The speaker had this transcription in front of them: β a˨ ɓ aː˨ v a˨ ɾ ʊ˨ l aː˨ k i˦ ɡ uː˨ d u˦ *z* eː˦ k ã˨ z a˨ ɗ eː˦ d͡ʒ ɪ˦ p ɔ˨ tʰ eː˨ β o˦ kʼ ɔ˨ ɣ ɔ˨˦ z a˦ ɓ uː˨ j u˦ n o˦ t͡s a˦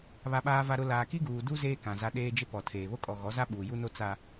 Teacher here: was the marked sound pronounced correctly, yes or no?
yes